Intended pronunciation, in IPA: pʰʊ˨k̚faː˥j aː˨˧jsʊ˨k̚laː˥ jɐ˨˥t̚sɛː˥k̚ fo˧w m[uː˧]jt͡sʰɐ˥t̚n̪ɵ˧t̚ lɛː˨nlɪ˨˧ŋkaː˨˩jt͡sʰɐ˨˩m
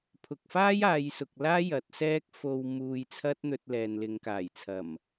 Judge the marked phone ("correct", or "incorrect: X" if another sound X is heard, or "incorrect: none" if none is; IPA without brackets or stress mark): correct